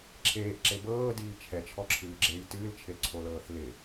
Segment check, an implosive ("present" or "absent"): absent